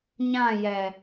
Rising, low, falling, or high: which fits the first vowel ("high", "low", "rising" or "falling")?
falling